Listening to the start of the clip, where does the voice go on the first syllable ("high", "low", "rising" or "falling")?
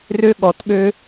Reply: high